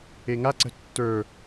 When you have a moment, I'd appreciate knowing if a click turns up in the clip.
yes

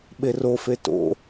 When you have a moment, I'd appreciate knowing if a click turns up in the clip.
no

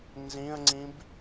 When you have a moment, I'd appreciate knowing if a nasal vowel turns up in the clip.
yes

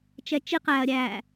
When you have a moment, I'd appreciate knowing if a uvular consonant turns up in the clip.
yes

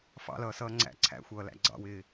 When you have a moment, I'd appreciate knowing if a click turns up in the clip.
yes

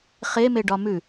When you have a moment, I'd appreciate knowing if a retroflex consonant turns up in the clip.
yes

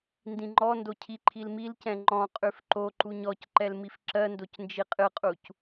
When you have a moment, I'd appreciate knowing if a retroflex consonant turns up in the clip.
no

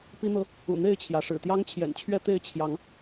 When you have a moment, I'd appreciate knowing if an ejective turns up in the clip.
no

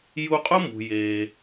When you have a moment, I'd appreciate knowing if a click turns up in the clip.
no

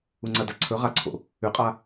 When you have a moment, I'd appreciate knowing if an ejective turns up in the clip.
yes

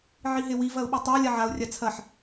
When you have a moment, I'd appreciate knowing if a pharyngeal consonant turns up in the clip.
yes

